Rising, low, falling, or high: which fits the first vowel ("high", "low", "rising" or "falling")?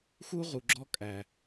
high